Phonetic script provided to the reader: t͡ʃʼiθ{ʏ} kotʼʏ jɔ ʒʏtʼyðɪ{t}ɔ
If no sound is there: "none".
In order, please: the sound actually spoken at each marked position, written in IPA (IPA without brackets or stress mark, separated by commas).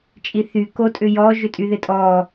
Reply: y, tʼ